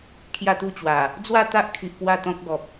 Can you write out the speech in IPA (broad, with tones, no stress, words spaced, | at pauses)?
kʰja˥˧t̪u˥˧ t͡ɕwa˨˩ | d͡zwa˥˧t̪a˦ʔkʰi˨ʔ pwa˥˧t̪ɔ̃˦k̚ɡɔ˨p̚